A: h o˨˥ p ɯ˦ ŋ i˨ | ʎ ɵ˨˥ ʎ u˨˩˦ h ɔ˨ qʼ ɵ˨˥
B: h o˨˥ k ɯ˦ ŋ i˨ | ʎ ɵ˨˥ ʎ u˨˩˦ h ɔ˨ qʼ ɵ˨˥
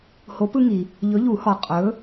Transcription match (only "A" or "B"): A